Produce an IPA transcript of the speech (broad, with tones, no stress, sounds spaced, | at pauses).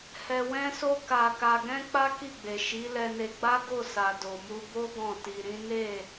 h ɛ˧ w ɛ̃˦ s o˦ k a˧ k a˧ ɡ ɛ̃˦ k͡p a˦ k i˦˨ ɡ͡b e˨ ʃ i˨˦ l ɛ˧ n e˧ ɡ͡b a˦ ɡ o˦˨ s a˨ d o˨ m u˧ b o˦ ɡ ɔ̃˦˨ t i˧ ɾ ĩ˦ n e˦˨